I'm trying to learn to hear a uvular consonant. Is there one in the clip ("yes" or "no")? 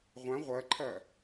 yes